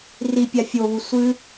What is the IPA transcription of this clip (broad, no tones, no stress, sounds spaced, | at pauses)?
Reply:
r i pʲ a fʲ o β u sʷ ɨ